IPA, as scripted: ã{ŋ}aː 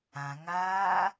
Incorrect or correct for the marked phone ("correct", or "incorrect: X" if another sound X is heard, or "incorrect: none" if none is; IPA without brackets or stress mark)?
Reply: correct